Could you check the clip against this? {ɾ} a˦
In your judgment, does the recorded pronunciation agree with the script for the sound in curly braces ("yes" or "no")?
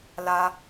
no